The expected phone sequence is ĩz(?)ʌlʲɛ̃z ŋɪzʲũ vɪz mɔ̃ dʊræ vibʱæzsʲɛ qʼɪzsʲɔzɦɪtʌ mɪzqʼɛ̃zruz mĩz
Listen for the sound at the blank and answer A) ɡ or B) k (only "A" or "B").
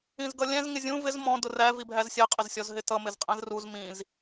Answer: A